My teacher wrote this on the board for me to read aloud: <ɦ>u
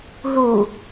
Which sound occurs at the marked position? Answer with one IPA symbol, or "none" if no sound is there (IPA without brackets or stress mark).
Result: ɦ